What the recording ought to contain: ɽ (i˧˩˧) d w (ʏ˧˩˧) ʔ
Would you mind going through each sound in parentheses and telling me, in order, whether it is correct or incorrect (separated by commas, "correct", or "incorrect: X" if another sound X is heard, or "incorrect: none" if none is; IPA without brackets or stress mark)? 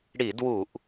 correct, incorrect: u˧˩˧